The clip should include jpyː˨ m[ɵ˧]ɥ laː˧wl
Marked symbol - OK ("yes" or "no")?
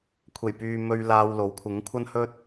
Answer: yes